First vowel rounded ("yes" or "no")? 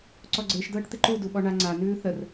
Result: yes